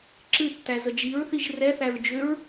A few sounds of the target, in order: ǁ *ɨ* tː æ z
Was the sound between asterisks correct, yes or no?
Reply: yes